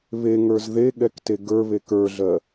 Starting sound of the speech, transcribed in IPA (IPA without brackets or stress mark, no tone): β